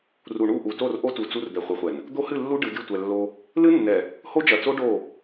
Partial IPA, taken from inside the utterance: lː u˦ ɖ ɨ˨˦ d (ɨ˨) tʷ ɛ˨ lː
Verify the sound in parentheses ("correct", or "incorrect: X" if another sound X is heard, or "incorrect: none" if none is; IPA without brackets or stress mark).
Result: incorrect: ɨ˦˨